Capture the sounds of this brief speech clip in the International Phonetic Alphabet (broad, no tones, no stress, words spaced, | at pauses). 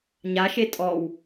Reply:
ɲaʃe tʼɔw